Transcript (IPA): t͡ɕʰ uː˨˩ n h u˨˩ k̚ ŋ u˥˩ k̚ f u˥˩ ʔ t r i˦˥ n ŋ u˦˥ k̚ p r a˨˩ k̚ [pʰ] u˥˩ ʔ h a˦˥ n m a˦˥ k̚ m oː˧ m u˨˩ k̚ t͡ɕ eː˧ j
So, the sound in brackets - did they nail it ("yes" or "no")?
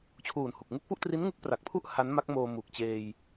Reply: yes